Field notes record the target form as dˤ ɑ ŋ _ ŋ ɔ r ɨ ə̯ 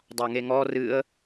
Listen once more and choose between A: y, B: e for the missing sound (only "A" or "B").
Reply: B